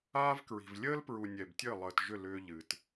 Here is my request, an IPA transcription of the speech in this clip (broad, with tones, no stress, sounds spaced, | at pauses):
aː˦ v k ɹ i̤˨ v lʲ əː˦ l p ɹ u˨ nʲ ɛ˨ b tʲ əː˦˨ lˠ əː˨ t ʒ ʏ˦˨ l ʏː˦ ʎ ɨ˨ t